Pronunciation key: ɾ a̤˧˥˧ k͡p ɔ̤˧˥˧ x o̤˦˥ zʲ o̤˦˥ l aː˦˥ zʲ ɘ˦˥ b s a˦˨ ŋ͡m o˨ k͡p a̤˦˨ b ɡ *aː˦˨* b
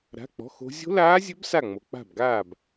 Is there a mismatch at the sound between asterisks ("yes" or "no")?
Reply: no